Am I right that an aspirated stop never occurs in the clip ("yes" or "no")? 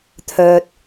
no